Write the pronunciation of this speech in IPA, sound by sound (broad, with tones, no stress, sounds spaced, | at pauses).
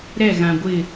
ɾ ɛ˦˨ ɣ ã˨ ɡʷ ɪ˦˨